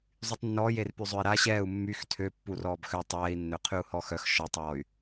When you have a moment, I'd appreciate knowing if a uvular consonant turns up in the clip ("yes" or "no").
yes